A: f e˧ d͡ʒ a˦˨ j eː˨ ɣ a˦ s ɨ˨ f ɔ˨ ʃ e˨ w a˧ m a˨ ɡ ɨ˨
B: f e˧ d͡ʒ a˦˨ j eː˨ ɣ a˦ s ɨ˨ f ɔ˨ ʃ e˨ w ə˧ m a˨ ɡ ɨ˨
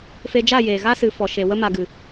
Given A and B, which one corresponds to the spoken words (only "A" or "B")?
B